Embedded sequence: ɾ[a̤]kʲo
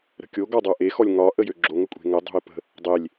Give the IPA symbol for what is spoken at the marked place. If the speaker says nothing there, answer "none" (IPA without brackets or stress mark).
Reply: ə̤